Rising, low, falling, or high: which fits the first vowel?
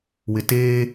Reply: low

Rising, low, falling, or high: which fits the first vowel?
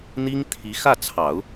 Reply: high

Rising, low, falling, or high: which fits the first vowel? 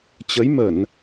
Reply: rising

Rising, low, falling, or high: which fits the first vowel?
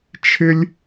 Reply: high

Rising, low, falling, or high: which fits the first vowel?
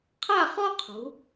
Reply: falling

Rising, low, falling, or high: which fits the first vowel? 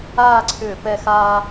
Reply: falling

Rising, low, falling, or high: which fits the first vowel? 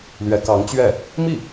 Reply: rising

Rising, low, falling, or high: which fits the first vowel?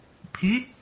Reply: rising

